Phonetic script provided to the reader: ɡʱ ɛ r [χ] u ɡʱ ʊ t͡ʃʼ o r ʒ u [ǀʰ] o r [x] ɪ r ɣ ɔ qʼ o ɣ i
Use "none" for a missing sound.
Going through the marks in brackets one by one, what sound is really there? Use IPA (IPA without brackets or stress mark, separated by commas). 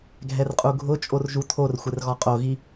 qʼ, tʰ, xʷ